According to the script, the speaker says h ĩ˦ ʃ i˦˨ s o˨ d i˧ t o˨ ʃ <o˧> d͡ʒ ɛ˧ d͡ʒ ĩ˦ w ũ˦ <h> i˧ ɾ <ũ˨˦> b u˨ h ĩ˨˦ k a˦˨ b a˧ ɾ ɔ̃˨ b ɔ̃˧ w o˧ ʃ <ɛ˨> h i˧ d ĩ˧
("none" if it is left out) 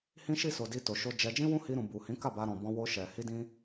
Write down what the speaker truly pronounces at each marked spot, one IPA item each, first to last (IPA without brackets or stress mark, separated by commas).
o˧, h, ũ˨, ɛ˨